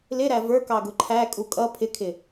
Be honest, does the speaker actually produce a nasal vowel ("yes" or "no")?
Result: no